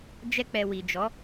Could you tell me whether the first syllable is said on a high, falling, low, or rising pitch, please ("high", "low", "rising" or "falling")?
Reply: high